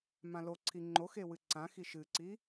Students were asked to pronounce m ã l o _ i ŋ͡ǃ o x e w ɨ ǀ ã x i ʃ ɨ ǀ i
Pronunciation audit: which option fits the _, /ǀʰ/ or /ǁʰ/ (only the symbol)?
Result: ǀʰ